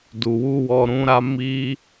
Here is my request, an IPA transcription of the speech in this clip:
d u˨ w u˧ w ɔ˧ ɾ ũ˦ ɾ a˦ m i˦

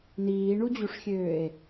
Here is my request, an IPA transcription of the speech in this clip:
n iː ɳ u d͡ʑ u ʂ xʲ øː e̯

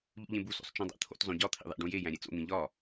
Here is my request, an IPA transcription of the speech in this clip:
ʎ ṵ ʎ ẽ b u s o̰ sˤ t͡ʃ ũ dˤ æ̰ t̪ʰ o̰ t zˤ õ ɟ ɒ t̪ʰ ḭ ðˤ æ̰ ɖ ũ j e j æ̃ ɾʲ e t͡s o̰ n̪ ĩ ʎ ɒ

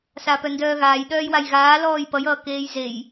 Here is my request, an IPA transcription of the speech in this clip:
s a p œ n d œː ɣ aː j ɗ œː j w a j ɣ aː l ɔː j p ʌ j ʌː k eː j z e j

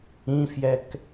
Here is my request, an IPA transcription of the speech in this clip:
ĩ f j ɛ k

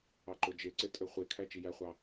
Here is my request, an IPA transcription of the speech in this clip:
ɑ ǃ o d͡ʒ e ǀ e tʼ ø χʷ e kʰ æ t͡ʃ i j æ χʷ ɑ

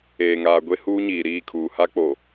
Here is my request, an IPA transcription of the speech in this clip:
eː˨ ŋ aː˨ ɡʷ e˦ h uː˦ ɲ iː˨ ɾ iː˦˨ kʰ uː˨ h a˦ k͡p o˨

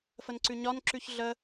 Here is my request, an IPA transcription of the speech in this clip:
f ə n ǀ ʉ ɲ ɒ n ǁ ʉ ç ɮ ə

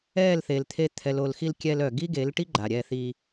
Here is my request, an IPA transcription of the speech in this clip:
ɛ˦˨ l θ e˨ l t̪ʰ e˧ t̪ʰ ɛ˨ l o˨ l x i˧ l kʲ ɛ˧ l œ˨ ɡ i˦ ɡ e˨˦ l ʈ i˦ ɡ͡ǃ a˨ ɾʲ ɛ˧ θ i˧

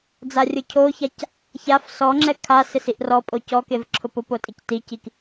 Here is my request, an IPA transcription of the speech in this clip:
d͡z a rʲ ʊ cʰ o ç a c | ç a f s ɔ ŋ͡ǁ ɛ kʰ a s ɪ s i ʔ r ɔ pʼ o c ɔ k e v ǁʰ ʊ p ʊ p o tʼ i c t i c i k

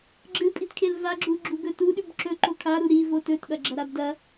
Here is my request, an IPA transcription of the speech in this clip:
ɡ͡ǁ ɨ pʼ i t kʰ e l v a ɡ͡ǁ u ɡ͡ǁ u ɡ ɵ t u ɗ ʉ b ǁ ɵ ǃ o kʰ a ɾ u ɾ i v o t ɵ t ɠ ɐ ɡ͡ǁ ɐ ɾ a b d ɐ

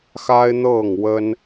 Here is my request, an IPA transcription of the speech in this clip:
x a˦ ɪ̯ n̪ ɤ˥˨ ŋ w ə˦ n

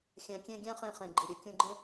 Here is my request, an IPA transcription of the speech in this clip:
xʲ æ̃˧ kʲ ẽ˥ ɡʲ æ̃˥ χ ẽ˧ χ ẽ˩ ɡ͡ǃ i˩ ɾʲ ɯ˩ kʲ ũ˧ ɡ͡ǃ ẽ˥

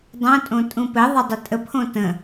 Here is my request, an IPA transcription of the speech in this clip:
dˤ õ tʼ õ tʼ ũ p ɘ ðˤ ɘ dˤ ə tʼ ə pʰ õ t ə̃

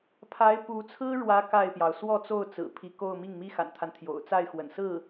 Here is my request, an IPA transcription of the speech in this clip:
pʰ a˧˥ ɪ̯ p u˧˥ t͡sʰ ɹ̩˥ ɻ w ä˧˥ k a˥˩ ɪ̯ p j ɑ˩ ʊ̯ s w ɔ˥˧ t͡s o˥˩ ʊ̯ t͡s ɹ̩˨˩ pʰ i˧˥ k o˥˧ ʊ̯ m i˥˩ ŋ m i˥ x a̰˨˩ n t̪ʰ a˦ n t̪ʰ j o̰˨˩ ʊ̯ t͡s a˥˩ ɪ̯ x w ə̰˨˩ n s ɹ̩˥˩

